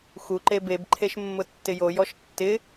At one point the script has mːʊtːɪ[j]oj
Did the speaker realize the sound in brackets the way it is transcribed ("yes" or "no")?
yes